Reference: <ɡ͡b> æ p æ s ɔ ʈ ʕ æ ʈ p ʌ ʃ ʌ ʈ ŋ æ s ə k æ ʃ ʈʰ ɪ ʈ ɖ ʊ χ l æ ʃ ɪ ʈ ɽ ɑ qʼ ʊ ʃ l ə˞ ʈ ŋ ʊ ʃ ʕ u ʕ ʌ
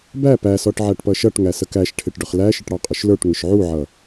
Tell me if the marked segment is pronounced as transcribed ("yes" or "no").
no